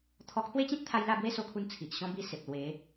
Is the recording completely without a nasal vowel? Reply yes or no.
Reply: no